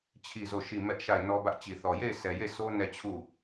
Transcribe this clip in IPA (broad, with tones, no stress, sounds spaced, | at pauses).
t͡ɕʰ i˦˨ z o˦˨ ʃ i˦˨ m ɛ˦ ʔ ʃ a˦˨ ɪ̯ n ɔ˦ b ä˦ ʔ t͡ɕ i˨ θ ɔ˨ j e˦˨ ɪ̯ sʰ ɛ˨ j e˦˨ sʰ o˦ n ɛ˦˨ t͡ɕʰ u˦˨